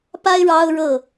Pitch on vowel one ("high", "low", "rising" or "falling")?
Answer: high